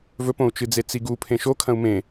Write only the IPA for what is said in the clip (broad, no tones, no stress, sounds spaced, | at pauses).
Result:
v ɵ p õ u̯ t͡ʃ ɨ d͡z e t͡s i ɡ u pʰ ẽ ʃ o kʰ ɐ̃ u̯ m ẽ